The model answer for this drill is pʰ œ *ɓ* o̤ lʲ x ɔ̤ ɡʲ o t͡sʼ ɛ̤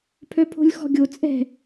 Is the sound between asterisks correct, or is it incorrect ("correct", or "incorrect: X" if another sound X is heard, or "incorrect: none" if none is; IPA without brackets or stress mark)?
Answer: incorrect: pʰ